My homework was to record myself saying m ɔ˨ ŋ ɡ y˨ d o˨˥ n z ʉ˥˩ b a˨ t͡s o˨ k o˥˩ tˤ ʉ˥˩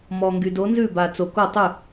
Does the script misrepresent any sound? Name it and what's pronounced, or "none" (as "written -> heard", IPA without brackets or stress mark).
none